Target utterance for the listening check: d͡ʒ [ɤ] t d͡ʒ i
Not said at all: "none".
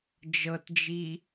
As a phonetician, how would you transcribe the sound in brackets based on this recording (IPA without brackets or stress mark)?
ɤ